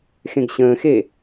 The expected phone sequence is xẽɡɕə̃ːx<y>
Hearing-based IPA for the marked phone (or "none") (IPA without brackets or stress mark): e